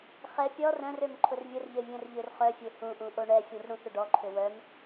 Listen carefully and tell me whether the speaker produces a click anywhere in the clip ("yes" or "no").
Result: yes